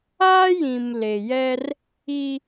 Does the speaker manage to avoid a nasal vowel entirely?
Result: no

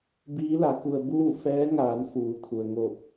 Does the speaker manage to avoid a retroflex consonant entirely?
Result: yes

